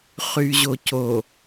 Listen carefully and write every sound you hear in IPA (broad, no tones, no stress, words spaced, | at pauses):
χyʑoco